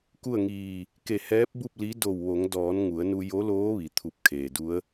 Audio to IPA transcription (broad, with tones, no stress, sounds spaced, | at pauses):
k u˥˨ ə̯ ŋ iː˧˩ | k e˧˩ h ɛː˧˥ p̚ b u˥˨ p̚ l i˧˥ d o˧˩ w ʋ o˩˧ ŋ d ɔː˩˧ n ŋ u˩˧ ə̯ n u˧ j o˧˥ l oː˧˥ ʋ i˩ t̪ʰ u˧ p̚ kʰ eː˩ d u˧˥ ə̯